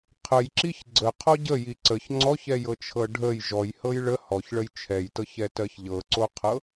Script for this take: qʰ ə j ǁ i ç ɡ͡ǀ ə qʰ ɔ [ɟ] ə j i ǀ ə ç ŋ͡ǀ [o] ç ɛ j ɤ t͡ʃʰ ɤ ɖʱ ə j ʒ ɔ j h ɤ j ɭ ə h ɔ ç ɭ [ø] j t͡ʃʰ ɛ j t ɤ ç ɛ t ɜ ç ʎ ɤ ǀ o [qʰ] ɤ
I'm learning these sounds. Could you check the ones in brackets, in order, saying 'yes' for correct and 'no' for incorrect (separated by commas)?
yes, no, no, yes